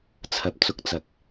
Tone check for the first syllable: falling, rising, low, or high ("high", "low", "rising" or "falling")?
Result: low